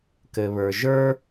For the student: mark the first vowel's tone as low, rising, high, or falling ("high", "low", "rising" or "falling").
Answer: low